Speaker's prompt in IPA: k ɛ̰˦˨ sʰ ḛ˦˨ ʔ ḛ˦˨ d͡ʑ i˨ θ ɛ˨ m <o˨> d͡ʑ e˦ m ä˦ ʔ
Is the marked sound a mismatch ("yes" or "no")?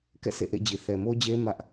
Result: yes